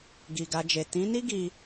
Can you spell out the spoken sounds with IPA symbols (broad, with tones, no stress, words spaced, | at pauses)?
ɡi˨ɡa˧d͡ʒe˨ tĩ˨˦ni˦ ɡi˦